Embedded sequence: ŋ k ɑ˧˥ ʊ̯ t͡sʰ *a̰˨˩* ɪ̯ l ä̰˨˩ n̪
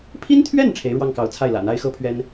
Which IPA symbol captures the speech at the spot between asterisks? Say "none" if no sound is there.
a˥˩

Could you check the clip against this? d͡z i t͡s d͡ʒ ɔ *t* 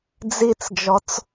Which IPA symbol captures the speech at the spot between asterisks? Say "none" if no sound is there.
t͡s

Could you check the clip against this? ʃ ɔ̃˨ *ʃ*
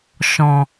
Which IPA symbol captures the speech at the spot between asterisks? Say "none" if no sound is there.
none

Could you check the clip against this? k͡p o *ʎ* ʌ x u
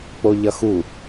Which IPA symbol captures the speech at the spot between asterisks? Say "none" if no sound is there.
ʎ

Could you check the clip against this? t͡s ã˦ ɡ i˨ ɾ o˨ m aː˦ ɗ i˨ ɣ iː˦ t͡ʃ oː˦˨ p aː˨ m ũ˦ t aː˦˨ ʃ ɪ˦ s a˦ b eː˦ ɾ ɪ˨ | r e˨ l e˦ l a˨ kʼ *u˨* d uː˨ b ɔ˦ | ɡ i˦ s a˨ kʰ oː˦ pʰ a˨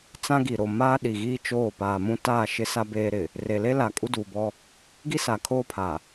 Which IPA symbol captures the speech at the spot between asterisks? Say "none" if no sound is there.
u˦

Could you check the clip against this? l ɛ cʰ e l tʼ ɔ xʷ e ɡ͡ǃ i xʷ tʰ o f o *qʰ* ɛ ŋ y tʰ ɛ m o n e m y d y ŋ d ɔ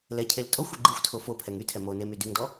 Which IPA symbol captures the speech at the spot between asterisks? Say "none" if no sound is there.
pʰ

